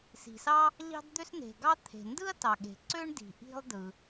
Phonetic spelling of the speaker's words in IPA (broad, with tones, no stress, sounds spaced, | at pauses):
s i̤˩ s ɑ˥ | ʎ ɑ̤˥ d d̪ ø˥ s n e̤˩ ɡ ɑ˥ t̪ʰ e̤˩ n d ɯ˥ ɐ̯ t ɑ˩ ɠ e̤˩ ǀ ø˥ ɳ d i̤˩ ʔ i̤˥ lˠ d ɯ˩